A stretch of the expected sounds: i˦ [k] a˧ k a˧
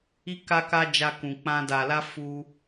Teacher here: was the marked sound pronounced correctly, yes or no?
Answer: yes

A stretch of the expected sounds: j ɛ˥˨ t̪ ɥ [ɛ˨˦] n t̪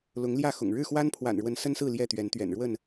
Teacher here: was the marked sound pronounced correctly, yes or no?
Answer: yes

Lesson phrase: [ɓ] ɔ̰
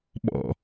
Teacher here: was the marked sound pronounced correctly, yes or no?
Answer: yes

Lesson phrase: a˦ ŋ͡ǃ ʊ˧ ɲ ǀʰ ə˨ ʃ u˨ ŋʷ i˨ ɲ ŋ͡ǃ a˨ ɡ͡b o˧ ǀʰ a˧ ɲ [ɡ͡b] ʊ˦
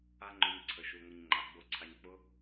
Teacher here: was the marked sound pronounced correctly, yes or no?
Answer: no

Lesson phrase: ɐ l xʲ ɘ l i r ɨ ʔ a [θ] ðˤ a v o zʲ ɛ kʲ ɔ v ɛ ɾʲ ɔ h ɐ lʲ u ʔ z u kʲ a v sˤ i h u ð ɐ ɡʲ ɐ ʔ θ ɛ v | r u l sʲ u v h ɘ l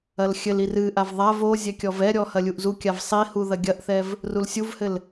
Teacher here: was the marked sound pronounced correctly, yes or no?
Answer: no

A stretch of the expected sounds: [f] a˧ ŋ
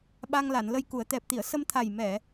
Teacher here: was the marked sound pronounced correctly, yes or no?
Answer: no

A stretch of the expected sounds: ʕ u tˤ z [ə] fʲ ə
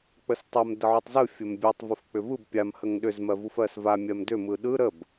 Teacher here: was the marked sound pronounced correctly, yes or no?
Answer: no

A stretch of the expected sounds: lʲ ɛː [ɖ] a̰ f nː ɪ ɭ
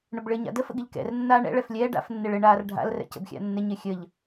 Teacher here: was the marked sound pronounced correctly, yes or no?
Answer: yes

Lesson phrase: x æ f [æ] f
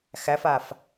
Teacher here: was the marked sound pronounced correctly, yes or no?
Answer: no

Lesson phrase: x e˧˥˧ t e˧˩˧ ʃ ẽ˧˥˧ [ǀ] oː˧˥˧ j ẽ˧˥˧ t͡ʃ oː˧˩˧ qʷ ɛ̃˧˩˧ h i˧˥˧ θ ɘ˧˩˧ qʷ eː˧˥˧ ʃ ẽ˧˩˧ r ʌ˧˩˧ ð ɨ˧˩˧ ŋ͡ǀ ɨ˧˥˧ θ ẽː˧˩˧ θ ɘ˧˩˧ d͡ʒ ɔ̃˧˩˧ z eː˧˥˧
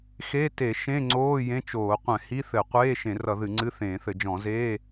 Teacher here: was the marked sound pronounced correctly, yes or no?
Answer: no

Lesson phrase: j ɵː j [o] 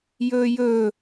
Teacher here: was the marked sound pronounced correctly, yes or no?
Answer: no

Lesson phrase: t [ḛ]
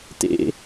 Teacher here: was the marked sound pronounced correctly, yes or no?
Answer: yes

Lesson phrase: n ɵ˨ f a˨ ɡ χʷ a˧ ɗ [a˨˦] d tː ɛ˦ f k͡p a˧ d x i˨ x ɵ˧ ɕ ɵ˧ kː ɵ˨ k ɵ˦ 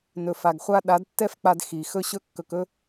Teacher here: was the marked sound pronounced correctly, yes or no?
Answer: yes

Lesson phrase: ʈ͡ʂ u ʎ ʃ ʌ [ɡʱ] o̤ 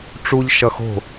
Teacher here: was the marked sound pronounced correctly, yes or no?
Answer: no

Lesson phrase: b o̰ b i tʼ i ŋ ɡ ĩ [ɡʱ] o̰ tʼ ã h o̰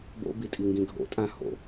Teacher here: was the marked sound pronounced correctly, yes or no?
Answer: yes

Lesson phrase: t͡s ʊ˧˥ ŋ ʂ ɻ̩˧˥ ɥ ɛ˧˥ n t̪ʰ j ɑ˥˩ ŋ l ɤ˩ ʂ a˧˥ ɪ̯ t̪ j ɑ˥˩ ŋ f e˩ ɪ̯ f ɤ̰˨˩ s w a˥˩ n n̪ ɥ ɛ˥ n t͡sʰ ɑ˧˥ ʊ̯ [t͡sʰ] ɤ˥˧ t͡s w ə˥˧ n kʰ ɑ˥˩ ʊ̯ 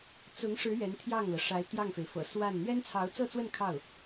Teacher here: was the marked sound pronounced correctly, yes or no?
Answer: no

